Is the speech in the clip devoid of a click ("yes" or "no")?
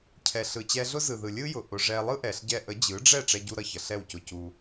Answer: yes